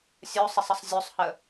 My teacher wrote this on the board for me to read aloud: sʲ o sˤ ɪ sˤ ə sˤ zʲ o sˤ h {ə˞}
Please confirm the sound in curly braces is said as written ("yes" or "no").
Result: no